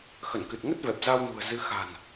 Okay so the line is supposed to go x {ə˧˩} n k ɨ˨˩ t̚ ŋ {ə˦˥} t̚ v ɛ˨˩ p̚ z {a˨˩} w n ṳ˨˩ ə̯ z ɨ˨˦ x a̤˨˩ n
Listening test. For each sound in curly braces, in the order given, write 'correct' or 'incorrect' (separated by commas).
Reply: correct, correct, incorrect